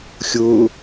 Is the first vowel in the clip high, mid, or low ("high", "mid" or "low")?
high